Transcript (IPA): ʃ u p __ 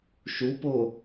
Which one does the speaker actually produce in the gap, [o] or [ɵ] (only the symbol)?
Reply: o